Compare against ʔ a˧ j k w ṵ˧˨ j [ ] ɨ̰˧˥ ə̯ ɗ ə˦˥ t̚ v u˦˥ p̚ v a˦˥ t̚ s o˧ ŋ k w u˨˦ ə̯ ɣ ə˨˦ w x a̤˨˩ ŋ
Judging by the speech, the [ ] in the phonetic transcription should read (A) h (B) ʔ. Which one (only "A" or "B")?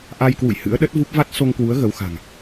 A